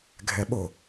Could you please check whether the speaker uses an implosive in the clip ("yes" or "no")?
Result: yes